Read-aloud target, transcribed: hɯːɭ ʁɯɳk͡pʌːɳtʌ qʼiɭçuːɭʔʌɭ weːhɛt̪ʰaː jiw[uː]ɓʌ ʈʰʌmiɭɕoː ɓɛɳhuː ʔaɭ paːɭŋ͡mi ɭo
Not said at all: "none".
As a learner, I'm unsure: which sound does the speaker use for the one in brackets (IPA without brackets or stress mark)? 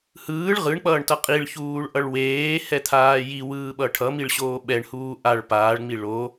ɯː